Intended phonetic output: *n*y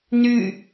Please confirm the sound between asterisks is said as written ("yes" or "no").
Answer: yes